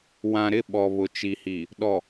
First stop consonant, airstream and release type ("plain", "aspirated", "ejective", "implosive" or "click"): implosive